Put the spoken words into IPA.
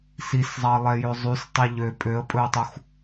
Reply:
s i s zˤ ɑ lˠ ɛ j ø zˤ y s tˤ i ʎ ø pʼ ø ə̯ pʼ ɵ ə̯ tˤ u x

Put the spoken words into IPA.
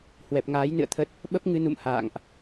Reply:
h w ɛ˨˩ p̚ ŋ aː˨˦ j n ɨ̰˧˨ ə̯ t̪ʰ ə˦˥ t̚ | ɓ ə˦˥ p̚ ŋ ɨ˧ n ṵ˧˨ m h a̰ː˧˨ ŋ ʔ

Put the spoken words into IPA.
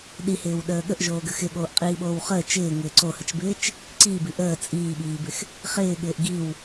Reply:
ɗ i h ɪː w ɗ əː ɠ ə ʔ ʒ oː ɡ ə x ɪ ɠ oː ʔ qʼ iː ɓ oː w χ əː t͡ʃ ɪː ŋ ɪː ǀ o h ə t͡ʃ b ɪː t͡ʃ | ǀ iː b i ʔ əː t͡sʼ iː ɓ iː b ɪ x | χ ɪː ɠ ɪː ʔ ɡ i w

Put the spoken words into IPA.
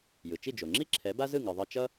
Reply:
j ɯ˩ t͡ʃ i˥˩ d͡ʒ o˩ ŋ͡ǁ i˥ ǁʰ ɛ˩˥ b a˥ z ɯ˥˩ ŋ ɯ˩ ðˤ ʌ˧ t͡ʃ ʌ˥

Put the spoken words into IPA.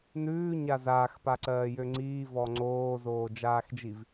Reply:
n ʉː ɲ a z aː x p a ǀ ɜː j ø ŋ͡ǀ iː v ɔ ŋ͡ǀ oː z oː d͡ʒ aː x d͡ʒ i v

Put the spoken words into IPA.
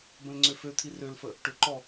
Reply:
b ə̃ l ŋ͡ǀ ø f ø t̪ʰ i r ø l f ə | ʈ ʏ ǃ ɔ

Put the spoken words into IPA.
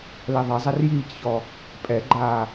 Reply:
l ɛ ðˤ ɛ zˤ ɛ r j iː c ç ɔ | pʼ ɛ ɡ͡ǃ aː

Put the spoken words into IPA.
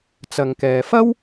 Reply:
t͡s ɐ˨ ŋ k ɛː˨ f ɐ˥ w

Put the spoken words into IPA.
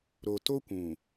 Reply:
ɾ o˨ t o˦ kʷ ũ˨

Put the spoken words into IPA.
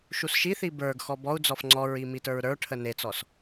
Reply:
ʃ u s ʃ i θ i b ə˞ ɡ x ɔ b ɔ u̯ d͡z ɔ f ŋ͡ǀ ɔ ɹ i m i t ə˞ ɹ ɾ ə˞ ʈʰ ə n e t͡s ɔ s

